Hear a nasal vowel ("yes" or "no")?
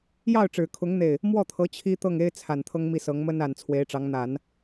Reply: no